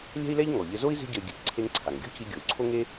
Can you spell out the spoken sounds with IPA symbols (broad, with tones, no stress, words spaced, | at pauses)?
lʲɛ̤˥i̯lɛ˥ʎ ŋɔ˩ ʎɘ˧zo˥i̯ ze̤˥ɟɘ˧y̯ ɡʲɨ˧t ǀʰe˧ŋǀʰa˩ŋɡʲɔ̤˥ci˧ ɡʲo˩u̯ǀʰo˥ŋe˥